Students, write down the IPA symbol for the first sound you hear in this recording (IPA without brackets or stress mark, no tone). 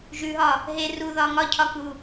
ʒ